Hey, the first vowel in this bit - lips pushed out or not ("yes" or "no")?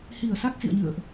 no